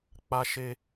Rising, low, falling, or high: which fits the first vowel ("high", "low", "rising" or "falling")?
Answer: high